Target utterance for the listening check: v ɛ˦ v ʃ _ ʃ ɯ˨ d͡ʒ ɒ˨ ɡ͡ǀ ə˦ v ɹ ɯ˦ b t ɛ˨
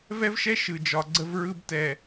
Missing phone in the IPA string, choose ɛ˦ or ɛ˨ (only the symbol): ɛ˦